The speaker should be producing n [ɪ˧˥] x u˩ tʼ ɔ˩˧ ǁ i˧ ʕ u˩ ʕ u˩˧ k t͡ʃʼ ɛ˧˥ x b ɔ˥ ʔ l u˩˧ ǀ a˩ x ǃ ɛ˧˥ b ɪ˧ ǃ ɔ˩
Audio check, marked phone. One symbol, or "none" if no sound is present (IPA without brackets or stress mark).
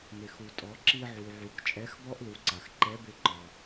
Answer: ɪ˩